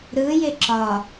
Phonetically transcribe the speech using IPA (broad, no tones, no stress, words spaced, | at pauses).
ɾɯjɪ ǁɒ